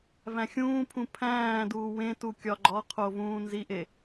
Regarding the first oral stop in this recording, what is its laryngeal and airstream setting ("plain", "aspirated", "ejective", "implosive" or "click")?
aspirated